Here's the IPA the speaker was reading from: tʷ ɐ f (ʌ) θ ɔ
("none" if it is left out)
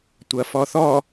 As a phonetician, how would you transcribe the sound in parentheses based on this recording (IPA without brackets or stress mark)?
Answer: ɔ